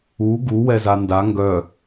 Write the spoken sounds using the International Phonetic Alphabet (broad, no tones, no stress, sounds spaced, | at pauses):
u ɡ u w ɛ z a n d a ŋ ɡ œ